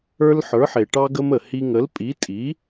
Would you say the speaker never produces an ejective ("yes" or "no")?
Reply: no